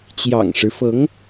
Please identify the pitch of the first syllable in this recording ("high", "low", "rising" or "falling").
low